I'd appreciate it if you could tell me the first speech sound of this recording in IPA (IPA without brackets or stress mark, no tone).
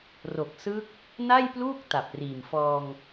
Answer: r